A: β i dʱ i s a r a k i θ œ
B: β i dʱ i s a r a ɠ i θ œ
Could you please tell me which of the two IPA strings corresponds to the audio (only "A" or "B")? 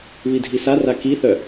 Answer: A